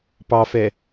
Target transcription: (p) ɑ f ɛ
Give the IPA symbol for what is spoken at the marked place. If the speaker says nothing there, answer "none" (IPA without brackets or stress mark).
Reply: p